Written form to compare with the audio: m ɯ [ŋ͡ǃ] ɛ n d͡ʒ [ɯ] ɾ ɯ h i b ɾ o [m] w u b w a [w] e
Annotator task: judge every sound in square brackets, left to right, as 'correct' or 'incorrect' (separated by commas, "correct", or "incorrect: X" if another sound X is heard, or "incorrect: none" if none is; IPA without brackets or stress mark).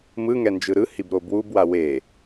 incorrect: ŋ, correct, incorrect: b, correct